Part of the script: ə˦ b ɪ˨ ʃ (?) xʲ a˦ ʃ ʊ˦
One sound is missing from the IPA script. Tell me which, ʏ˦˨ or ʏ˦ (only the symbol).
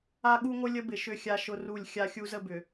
ʏ˦˨